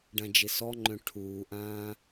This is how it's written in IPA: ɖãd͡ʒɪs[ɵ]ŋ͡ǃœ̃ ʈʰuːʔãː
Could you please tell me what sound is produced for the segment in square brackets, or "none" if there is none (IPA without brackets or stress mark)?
ɔ